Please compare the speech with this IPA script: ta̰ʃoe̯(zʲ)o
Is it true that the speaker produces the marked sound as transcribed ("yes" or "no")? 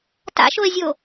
yes